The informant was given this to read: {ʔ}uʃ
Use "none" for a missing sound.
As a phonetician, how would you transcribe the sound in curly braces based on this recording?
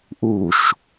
ʔ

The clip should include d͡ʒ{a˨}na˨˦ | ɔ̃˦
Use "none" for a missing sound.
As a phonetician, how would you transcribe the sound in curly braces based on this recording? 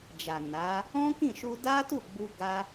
a˨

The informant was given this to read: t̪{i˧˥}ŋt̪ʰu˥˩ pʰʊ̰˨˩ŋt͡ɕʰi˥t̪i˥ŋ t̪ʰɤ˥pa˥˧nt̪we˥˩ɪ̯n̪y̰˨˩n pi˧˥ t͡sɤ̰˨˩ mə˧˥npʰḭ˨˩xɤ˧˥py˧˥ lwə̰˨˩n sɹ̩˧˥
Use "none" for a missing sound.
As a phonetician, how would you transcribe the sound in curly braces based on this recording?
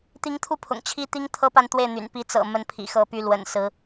i˧˥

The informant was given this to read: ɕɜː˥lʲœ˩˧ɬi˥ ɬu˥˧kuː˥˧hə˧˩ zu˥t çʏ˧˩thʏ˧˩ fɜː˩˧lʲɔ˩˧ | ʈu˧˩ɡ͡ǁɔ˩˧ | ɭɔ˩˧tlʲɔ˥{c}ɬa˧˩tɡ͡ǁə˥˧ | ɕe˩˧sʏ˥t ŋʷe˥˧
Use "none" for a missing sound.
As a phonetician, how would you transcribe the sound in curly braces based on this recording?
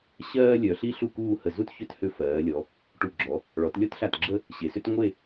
t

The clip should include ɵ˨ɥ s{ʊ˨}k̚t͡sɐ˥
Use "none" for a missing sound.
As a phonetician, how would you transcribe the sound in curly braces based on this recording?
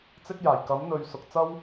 ʊ˨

